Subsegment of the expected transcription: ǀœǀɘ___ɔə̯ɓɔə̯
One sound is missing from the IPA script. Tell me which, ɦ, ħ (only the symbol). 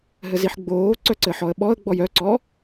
ħ